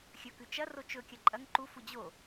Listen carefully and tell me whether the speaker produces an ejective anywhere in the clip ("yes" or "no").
yes